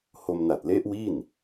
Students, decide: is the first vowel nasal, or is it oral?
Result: oral